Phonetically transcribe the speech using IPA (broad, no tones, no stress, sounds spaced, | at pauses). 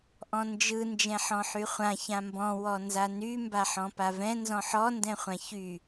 ʔ ɔ̃ n d͡ʒ ɯ n d͡ʒ ɛ̃ ħ ɔ̃ ħ y χʷ ã ç ã m b ɔ̃ w ɔ n z a n y m b a ħ ɔ̃ p a v ɛ̃ n z ɔ̃ ħ ɔ n d ɛ̃ χʷ ã ç y